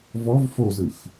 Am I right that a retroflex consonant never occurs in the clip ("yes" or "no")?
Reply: yes